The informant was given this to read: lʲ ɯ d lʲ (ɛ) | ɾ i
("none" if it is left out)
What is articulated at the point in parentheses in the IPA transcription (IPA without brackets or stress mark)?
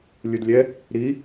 ɛ